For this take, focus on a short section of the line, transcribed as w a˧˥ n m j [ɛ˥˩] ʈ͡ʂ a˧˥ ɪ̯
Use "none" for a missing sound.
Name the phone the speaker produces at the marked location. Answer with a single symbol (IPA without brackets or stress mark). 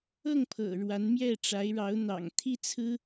ɛ˥˩